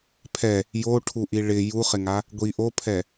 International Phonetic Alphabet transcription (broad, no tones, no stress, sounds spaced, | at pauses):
pʰ ɛ | j o ʈʰ u ʔ i ɭ ɪ j u χ ɪ ŋ a | ɡʷ i ʔ o pʰ ɛ